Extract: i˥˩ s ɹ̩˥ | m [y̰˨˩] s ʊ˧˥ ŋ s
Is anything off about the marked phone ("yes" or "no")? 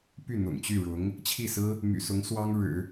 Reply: no